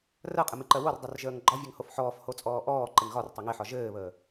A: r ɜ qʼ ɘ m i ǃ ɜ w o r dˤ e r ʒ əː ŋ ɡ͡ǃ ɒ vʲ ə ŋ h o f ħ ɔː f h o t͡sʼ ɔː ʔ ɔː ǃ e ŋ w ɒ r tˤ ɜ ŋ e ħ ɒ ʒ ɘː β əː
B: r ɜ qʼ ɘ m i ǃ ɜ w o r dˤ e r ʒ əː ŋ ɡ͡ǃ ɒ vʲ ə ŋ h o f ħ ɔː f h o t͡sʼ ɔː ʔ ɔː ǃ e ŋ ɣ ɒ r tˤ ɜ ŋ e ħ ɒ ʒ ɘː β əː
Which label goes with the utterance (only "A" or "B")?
B